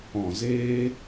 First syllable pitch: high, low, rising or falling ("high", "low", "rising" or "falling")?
low